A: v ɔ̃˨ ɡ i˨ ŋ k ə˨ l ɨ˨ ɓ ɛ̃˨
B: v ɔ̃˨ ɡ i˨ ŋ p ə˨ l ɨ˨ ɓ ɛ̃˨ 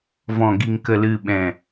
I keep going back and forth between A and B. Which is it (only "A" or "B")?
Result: A